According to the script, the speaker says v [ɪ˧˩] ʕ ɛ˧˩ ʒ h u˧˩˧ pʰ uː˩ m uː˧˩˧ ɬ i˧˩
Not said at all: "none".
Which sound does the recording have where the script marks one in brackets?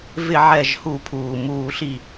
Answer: ɪ˧˩˧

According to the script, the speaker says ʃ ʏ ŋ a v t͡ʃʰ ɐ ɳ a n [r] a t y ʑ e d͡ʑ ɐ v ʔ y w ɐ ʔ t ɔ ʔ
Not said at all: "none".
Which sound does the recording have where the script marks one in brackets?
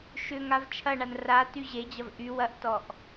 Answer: r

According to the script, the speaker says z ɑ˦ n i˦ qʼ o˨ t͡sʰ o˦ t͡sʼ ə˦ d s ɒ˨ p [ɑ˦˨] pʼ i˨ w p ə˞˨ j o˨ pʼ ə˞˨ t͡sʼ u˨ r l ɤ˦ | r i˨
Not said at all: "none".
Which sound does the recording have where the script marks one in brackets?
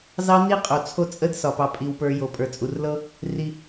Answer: ɑ˨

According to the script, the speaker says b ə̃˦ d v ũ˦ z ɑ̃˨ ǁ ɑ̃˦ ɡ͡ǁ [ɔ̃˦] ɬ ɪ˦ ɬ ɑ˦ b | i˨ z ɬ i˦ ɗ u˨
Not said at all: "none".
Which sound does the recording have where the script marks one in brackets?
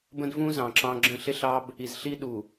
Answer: ə̃˦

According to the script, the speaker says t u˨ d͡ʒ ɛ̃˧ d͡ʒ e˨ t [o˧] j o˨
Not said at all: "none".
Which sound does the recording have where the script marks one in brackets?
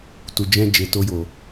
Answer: o˧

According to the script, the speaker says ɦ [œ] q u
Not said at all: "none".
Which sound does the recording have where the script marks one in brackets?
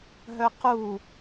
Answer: œ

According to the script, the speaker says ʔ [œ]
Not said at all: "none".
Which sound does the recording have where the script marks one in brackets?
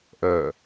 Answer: œ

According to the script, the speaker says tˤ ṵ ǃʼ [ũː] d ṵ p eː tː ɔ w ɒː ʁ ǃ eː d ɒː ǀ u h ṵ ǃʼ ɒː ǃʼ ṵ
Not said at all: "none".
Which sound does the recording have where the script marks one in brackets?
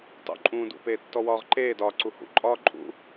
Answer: ũː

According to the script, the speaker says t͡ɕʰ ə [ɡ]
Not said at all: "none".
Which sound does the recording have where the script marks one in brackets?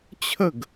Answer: ɡ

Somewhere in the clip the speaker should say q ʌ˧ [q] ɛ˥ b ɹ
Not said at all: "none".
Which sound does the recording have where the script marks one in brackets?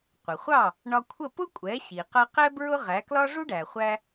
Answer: q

